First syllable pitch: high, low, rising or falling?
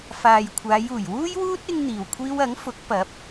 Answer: low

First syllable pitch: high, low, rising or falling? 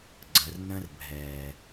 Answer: low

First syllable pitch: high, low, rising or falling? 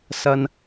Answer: low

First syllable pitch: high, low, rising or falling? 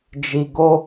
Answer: low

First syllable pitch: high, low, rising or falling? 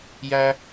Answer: low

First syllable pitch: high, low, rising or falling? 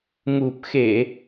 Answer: low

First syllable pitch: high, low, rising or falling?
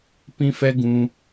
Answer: high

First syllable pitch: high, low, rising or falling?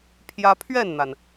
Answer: high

